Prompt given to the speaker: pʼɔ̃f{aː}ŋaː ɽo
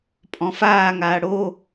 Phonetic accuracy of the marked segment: correct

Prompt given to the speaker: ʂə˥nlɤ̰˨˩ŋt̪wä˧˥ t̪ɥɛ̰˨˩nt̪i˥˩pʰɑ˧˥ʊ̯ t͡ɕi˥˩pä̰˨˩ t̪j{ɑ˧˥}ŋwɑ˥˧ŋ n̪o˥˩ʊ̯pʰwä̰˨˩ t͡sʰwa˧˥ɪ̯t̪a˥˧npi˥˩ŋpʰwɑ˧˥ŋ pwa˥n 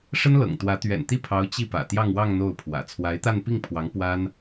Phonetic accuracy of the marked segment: incorrect: ɑ˥˧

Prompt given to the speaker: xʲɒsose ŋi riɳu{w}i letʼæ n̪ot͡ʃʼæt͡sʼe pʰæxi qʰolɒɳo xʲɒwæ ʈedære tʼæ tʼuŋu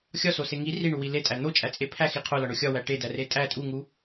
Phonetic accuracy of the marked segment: correct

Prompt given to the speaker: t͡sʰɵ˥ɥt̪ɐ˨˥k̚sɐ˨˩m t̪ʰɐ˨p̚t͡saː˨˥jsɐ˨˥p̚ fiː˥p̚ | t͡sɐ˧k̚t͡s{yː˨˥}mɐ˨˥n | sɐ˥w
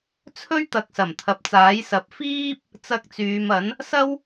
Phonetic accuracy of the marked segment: incorrect: yː˨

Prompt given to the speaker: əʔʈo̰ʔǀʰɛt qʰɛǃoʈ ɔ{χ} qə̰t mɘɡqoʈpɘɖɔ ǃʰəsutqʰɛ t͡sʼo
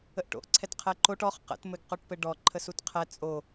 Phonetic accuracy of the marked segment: correct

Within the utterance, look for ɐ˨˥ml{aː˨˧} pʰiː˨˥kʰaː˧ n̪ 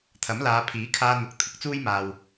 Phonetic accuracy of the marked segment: correct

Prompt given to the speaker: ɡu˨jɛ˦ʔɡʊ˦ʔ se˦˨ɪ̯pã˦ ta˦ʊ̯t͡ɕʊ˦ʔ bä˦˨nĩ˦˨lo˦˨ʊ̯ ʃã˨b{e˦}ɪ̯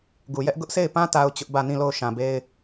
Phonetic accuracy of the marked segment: correct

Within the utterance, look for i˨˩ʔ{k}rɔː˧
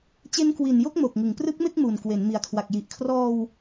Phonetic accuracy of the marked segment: incorrect: kʰ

